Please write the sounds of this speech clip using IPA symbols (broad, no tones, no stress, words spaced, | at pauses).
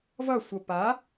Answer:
vʌsʷʌ pa